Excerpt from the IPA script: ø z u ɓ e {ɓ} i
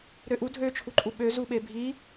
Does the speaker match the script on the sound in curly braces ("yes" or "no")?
no